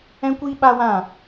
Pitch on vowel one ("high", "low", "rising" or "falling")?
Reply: high